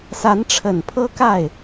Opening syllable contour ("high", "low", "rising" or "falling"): rising